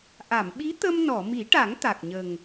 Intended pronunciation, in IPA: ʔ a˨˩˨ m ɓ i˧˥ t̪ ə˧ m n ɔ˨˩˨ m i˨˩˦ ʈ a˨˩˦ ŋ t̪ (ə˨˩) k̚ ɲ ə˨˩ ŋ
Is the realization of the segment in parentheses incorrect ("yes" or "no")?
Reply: yes